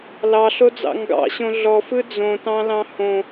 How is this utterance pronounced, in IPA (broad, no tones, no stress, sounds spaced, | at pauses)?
l ɑ ɬ o d͡z ɑ̰ ŋ ɡ ɑ̰ ɕ õ ɮ ɔ f ɯ d͡z õ t ɑ̃ l ɑ̃ h õ